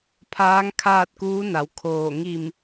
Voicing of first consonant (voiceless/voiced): voiceless